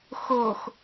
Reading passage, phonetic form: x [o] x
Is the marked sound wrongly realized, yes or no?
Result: no